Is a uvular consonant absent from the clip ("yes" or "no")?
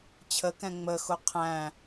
no